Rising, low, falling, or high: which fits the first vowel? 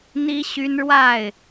high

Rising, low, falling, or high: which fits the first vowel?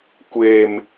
low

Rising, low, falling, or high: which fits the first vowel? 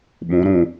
rising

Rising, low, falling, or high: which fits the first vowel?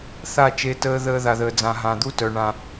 falling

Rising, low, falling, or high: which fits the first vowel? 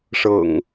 low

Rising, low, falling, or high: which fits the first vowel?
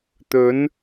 rising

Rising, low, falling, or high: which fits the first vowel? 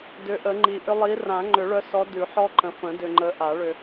rising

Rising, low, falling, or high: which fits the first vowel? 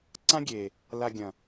high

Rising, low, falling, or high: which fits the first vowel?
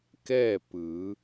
falling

